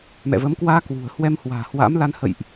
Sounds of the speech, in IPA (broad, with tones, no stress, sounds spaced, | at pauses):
m ɛ̰˧˨ v ə˨˦ m k w aː˧ k w ṳ˨˩ ə̯ h w ɛ˧ m h w a̤ː˨˩ h w a̰˧˥ m l a˧ n h ə̰˧˨ j ʔ